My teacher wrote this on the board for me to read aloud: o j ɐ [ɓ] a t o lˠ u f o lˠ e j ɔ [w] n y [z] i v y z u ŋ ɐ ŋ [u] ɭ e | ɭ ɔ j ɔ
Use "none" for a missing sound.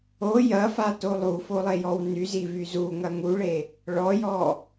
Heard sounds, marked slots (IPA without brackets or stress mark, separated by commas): f, w, z, u